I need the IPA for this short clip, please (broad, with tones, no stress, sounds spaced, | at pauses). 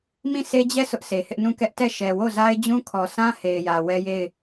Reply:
m ĩ˦˨ s e˦ d͡ʑ ɛ˦˨ sʰ ʊ˦ ʔ sʰ e˨ h ɪ˦ ʔ n ũ˦˨ k ɛ˦ ʔ t ɛ˦˨ ʃ ɛ˨ w o˦˨ z a˦ ɪ̯ d͡ʑ ũ˦ kʰ ɔ˨ sʰ ã˦ h e˨ ɪ̯ j ä˨ w ɛ˦ j e˦˨ ɪ̯